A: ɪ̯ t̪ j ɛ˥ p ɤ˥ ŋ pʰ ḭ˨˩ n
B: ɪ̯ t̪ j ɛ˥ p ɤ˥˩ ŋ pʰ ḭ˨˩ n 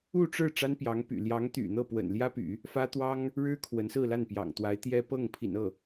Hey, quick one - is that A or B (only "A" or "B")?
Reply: B